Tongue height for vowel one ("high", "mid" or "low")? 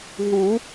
high